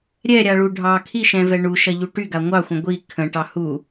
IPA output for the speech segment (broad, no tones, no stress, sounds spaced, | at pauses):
ɾʲ ɛ ɾʲ a ɭ u ɖʱ ɑ kʰ i ʃ ɛ̃ v ɛ ɳ u ʃ ɐ ʎ u ʈ y ɡ a ŋʷ ɑ xʷ ə̃ ɡʷ i kʰ ə̃ ʈ ɑ h u